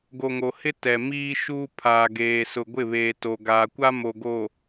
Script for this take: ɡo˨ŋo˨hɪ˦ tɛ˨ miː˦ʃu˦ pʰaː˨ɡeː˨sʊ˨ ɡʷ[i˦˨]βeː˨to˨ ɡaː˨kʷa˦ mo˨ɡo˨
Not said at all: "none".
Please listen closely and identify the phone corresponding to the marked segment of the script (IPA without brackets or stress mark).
ɪ˦˨